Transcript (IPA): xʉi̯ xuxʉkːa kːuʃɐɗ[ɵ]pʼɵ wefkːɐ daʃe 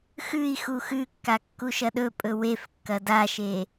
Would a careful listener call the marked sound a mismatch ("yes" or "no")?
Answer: no